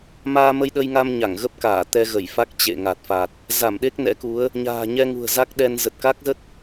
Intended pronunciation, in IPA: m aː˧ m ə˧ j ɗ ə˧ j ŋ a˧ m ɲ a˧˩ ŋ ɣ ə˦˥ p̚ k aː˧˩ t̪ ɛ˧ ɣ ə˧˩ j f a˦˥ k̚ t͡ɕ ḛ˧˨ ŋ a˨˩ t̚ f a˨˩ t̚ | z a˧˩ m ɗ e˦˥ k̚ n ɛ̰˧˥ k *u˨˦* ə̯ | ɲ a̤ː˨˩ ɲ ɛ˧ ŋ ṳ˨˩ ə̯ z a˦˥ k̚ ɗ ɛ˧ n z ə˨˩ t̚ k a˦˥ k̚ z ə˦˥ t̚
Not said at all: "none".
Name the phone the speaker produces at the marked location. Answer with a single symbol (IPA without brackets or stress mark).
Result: u˨˦